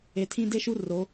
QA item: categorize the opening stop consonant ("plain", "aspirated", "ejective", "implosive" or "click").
aspirated